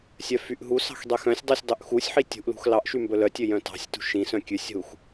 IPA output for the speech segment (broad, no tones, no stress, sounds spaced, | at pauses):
sʲ œ f y ʔ ɦ u s ɑ̤ x dˤ y x œ̃ sʲ dˤ y sʲ dˤ ʉ ʔ x u sʲ ħ i tʲ ṳ ʔ l ṳ x l ɑ ʔ ʃ y m b ɵ l œ tʲ ø j œ̃ t ɑ̤ sʲ t ṳ ʃ ĩ s œ̃ kʲ ʉ sʲ ɦ u x